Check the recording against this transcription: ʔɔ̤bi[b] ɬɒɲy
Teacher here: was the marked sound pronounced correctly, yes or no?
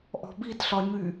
no